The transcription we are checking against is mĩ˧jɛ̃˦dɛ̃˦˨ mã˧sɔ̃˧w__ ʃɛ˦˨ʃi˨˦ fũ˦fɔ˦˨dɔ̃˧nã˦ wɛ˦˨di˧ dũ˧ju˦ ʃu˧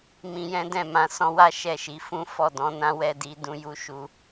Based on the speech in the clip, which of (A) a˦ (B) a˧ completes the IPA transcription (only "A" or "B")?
A